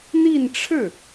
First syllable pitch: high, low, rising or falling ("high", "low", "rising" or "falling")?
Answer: falling